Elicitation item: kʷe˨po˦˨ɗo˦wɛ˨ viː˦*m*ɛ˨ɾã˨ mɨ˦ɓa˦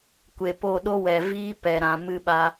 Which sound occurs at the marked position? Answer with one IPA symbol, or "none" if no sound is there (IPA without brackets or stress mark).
p